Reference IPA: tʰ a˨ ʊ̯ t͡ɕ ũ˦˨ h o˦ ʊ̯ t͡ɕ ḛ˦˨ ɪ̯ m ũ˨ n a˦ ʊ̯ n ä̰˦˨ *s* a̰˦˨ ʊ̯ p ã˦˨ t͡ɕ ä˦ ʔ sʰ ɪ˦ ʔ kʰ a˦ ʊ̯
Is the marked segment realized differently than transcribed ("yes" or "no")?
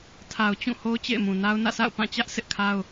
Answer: no